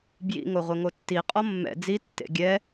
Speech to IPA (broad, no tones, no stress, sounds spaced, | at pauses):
b j ḭ ŋ o ʁʷ ɘ ŋ o tː i qʼ ɔ mː ɛ̰ d͡z i tː ḛ ɡʲ ɛ